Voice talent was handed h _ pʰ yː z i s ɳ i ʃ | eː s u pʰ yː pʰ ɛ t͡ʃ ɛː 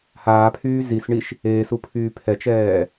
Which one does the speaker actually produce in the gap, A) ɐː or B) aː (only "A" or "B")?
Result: B